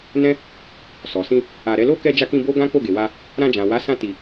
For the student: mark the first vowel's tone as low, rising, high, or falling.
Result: high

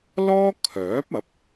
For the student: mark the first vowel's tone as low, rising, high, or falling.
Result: high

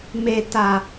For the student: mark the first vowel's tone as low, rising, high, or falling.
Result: low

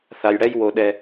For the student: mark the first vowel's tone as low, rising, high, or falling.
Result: low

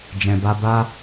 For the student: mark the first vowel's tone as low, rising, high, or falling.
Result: low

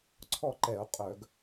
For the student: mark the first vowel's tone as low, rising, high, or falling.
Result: falling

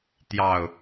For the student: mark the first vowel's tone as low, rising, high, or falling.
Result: low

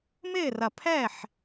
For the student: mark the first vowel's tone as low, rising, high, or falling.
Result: falling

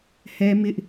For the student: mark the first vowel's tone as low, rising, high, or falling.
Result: high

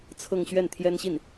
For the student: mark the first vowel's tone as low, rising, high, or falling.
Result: falling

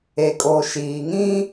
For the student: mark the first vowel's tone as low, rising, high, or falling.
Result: low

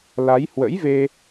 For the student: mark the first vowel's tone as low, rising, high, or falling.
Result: rising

